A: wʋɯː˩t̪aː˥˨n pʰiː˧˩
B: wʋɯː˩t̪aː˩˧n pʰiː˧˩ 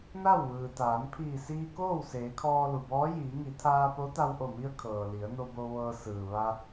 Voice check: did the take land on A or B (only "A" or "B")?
B